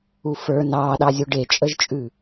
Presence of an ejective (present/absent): present